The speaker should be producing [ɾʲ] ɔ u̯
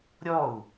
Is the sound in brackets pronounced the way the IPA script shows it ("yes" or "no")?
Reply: yes